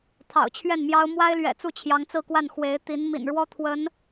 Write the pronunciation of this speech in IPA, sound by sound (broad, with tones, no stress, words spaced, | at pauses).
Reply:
t̪ʰɑ̰˨˩ʊ̯t͡ɕʰɥɛ˥˩nmjɑ˥ʊ̯ mwa˥ɪ̯lɥɛ̰˨˩ t͡su˥˩t͡ɕʰjɑ˧˥ŋt͡sɹ̩˥˧kwa˥˩n xwe˧˥ɪ̯t̪i˧˥n mḭ˨˩nɻwɔ˥ t̪ʰwə˧˥n